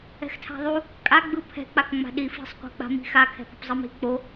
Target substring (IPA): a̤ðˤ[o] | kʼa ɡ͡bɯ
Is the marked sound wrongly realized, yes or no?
yes